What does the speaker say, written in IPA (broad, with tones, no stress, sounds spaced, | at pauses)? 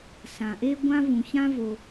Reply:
s ã˩ ʔ e˥ ɡʷ ã˥ v ũ˩ ç ã˥ v o˩